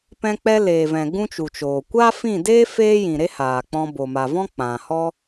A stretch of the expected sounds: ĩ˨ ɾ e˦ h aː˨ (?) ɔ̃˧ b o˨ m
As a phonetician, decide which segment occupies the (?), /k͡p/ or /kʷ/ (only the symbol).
k͡p